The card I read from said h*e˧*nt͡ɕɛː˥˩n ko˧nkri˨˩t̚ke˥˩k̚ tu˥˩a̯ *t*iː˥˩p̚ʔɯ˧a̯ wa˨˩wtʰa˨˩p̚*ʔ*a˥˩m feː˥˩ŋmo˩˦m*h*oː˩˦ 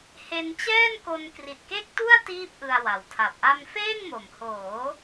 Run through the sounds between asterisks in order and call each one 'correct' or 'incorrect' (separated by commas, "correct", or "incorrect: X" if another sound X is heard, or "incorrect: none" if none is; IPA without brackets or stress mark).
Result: correct, correct, correct, correct